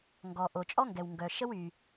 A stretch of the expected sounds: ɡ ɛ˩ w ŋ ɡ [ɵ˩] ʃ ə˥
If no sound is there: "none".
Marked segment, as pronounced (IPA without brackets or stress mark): œ˩